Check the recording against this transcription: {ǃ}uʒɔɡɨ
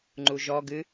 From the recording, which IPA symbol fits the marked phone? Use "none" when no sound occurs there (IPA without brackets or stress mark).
ŋ͡ǃ